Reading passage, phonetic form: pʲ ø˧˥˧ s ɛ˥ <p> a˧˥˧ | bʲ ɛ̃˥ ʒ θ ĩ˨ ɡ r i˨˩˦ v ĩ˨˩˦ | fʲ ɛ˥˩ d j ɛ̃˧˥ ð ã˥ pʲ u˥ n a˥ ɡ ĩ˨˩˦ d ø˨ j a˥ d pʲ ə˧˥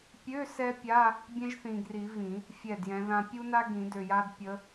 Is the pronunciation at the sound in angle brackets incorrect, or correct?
incorrect